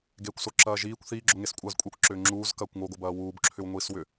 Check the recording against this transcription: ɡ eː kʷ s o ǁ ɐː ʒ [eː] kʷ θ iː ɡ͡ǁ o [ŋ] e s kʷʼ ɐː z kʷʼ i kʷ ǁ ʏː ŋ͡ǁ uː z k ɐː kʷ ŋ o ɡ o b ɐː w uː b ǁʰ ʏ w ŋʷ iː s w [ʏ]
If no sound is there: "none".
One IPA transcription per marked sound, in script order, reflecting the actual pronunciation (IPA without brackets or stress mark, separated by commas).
iː, ŋ, ʏ